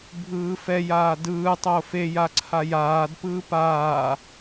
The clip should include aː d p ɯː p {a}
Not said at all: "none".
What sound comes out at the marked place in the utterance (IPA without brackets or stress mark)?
aː